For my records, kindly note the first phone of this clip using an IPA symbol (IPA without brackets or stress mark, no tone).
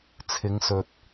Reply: t͡sʰ